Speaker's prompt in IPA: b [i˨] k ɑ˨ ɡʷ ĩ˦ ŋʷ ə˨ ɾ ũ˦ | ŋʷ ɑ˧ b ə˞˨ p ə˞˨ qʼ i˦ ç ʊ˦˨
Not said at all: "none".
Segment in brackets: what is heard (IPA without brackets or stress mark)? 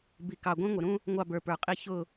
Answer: i˨